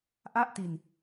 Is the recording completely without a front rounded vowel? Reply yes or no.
yes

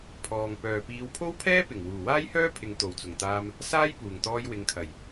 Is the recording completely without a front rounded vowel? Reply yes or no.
no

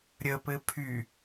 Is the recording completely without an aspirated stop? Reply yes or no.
no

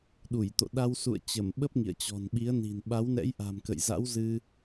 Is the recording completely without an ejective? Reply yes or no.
yes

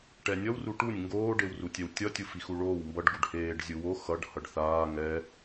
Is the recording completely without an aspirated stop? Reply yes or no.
yes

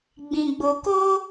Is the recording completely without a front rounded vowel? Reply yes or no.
yes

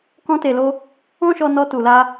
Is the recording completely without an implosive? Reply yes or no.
yes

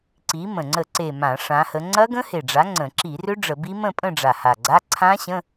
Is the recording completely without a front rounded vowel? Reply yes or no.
no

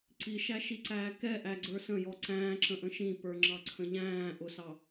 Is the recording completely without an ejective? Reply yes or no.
yes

